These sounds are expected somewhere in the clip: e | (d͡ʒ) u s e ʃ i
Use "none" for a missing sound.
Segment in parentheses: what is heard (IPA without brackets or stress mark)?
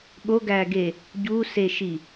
ɟ